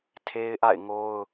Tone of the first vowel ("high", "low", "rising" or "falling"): high